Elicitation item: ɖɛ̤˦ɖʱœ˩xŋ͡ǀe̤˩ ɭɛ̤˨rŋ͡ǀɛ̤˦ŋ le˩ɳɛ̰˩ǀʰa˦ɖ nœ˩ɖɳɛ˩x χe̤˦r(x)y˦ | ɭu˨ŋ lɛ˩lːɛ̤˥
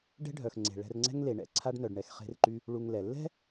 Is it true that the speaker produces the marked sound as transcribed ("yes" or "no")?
no